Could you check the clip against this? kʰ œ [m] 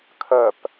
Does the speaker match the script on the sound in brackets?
no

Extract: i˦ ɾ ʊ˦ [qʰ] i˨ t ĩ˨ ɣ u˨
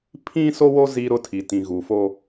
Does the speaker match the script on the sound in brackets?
no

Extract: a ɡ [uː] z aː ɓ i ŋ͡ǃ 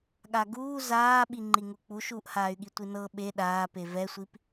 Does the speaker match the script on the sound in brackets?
yes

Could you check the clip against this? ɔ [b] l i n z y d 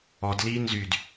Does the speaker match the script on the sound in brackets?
no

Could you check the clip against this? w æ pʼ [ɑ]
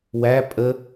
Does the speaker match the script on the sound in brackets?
no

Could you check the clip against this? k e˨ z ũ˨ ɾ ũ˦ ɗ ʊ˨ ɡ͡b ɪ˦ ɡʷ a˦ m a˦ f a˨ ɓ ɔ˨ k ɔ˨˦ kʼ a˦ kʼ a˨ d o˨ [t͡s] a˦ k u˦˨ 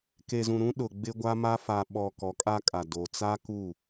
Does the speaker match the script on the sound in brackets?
yes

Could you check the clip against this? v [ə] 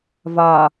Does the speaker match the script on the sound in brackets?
no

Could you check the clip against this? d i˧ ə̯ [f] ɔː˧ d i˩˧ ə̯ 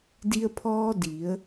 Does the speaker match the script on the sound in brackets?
no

